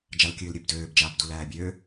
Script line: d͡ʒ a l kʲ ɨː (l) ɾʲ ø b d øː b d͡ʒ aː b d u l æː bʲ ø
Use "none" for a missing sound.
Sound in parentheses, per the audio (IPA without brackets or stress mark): l